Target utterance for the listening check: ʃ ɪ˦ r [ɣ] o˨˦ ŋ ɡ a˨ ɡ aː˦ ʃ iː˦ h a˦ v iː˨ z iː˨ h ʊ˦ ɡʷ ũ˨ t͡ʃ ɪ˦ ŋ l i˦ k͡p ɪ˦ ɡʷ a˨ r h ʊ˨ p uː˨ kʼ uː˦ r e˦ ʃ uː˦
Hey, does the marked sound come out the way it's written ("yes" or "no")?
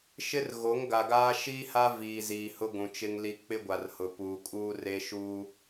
yes